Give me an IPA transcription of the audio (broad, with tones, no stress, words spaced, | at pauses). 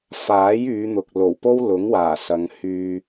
faː˨˥jyː˨˧n̪ʊ˨k̚ lo˨˩wpo˥wlʊ˨˥ŋwaː˨˩ sɐ˨˧ŋhyː˧